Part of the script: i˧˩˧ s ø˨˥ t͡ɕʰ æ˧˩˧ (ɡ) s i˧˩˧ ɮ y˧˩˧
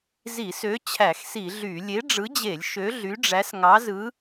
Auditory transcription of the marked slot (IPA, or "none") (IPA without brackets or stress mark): x